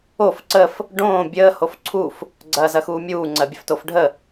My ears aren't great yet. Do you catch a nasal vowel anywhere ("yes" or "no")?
yes